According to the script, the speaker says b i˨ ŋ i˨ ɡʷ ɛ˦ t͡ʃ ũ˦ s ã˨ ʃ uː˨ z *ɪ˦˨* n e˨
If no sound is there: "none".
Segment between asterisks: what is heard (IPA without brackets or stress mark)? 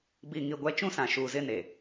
ɪ˦˨